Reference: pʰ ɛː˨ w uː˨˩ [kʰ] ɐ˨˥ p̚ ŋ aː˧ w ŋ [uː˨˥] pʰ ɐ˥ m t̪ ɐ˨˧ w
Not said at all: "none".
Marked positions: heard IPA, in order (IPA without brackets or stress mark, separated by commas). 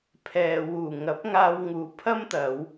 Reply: ŋ, uː˨˥